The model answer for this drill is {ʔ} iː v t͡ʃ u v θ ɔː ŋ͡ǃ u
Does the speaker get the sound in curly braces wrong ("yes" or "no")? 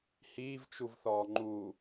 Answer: yes